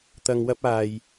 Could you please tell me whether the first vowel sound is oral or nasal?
oral